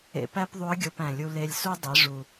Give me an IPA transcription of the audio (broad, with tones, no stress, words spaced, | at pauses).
ḛ˧pæ˥pðˤu˧˥ə̯ ɡʲo˧pæ̃˨˩lʲu˧ le˧lʲsu˥ dˤi˩˧ʐu˨˩